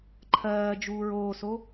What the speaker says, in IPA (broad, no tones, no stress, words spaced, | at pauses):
ǃʰɜːd͡ʒuːɹ oːso